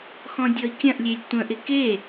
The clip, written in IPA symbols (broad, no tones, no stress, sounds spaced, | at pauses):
x ɔ̃ dʲ ɔ i̯ kʲ ɐ̃ ʔ lʲ e lʲ tʷ ə̃ ʔ ɪ k e